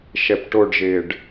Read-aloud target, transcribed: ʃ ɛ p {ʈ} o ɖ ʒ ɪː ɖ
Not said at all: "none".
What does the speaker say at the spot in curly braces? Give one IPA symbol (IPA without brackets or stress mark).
ʈ